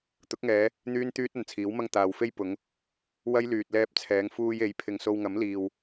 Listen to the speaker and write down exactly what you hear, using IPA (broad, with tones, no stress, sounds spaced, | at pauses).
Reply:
t̪ ʊ˨˥ k̚ ŋ ɛː˨˧ | n̪ yː˥ n t̪ yː˥ t̚ ɐ˨ n t͡sʰ iː˨˥ w m ɐ˥ ŋ t̪ aː˨ w f e˥ j p ʊ˨˧ ŋ | w ɐ˥ j l yː˨ t̚ l ɛː˧ p̚ t͡sʰ ɛː˨˧ ŋ f uː˧ j e˨˥ j pʰ ɪ˨ ŋ s o˧ w ŋ ɐ˨˥ m l iː˨ w